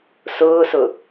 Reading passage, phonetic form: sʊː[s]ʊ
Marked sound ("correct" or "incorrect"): correct